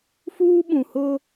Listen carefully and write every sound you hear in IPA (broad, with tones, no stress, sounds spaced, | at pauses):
f uː˦ ɓ ũ˨ h ʊ˦